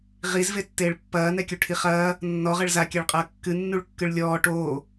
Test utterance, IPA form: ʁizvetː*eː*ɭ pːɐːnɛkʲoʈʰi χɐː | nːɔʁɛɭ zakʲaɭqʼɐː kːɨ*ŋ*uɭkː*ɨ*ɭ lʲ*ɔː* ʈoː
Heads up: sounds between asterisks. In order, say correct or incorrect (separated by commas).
correct, incorrect, correct, correct